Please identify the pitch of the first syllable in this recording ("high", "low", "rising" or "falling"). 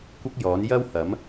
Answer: high